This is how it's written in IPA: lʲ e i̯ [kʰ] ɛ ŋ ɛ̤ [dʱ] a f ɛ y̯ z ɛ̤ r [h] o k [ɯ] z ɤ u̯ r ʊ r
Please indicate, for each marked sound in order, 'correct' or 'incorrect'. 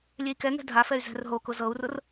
incorrect, correct, incorrect, incorrect

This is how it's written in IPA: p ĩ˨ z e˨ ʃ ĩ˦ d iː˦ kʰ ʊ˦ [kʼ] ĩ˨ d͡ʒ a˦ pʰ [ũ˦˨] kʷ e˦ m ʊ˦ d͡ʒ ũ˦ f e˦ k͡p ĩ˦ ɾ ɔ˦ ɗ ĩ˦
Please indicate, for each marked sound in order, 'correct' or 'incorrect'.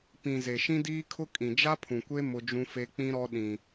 correct, incorrect

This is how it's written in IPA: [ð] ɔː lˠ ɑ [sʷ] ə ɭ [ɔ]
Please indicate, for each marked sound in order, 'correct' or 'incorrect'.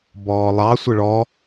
incorrect, correct, correct

